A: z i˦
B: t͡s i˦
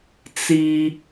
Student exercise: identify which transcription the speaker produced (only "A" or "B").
B